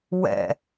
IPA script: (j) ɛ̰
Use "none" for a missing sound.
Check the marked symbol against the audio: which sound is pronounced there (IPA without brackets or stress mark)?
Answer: w